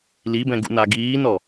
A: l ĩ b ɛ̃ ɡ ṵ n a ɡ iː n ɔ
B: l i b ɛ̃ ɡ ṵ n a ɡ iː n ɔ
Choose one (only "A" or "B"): B